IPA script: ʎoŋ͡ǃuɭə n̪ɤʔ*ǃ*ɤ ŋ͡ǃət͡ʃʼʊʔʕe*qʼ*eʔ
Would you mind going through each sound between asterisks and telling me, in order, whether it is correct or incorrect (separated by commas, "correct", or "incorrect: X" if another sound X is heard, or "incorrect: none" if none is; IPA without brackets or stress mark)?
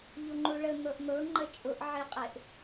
incorrect: n̪, correct